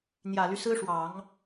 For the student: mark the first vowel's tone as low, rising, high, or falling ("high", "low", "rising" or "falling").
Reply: low